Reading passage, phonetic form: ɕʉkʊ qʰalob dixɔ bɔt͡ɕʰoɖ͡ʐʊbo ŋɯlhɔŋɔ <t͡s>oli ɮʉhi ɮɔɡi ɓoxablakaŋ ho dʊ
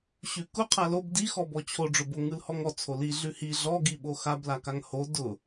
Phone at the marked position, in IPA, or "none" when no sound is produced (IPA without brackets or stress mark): t͡sʰ